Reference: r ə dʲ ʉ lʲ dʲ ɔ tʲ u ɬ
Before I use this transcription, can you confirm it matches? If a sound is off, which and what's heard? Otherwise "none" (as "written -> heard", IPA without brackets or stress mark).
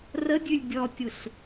none